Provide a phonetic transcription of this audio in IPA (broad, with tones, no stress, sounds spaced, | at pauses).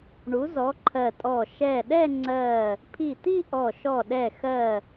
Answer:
ɳ u˨˥ z ɔ˨˥ ǃʰ ɜ˧˩ tʼ ɔ˧˩ ʃ ɛ˧˩ ɗ ɛ˥˧ ŋ͡ǀ ɜ˧˩ | pʰ i˧˩ t̪ i˥˧ ʔ ɔ˧˩ ʃ ɔ˧˩ ɗ ɛ˧˩ x ɜ˧˩